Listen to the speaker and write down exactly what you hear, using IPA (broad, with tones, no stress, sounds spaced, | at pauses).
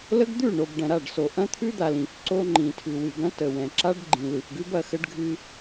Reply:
l ə˦ ɡ d̪ ʉ˦˨ ɳ o˨ b ɖ ɐ̃˨ ɾ a˦˨ ɖ s o˨ ʔ ɐ̃˦ t̪ʰ ʉ˦ d̪ a˨ l ĩ˨ f ǀ o˦ ŋ͡ǃ ĩ˨ tʰ ʉ˨ w ɨ˨ ɡ ɐ̃˦ t ə˨ w ɛ̃˨ ǁ a˦ ɖ ɡ͡ǃ ĩ˨ l ɨ˨ f ɡ ʉ˦ b ɐ˨ x ə˦ ɖ ɡʱ ɨ˦